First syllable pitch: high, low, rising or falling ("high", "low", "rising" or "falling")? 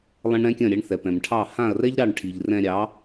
high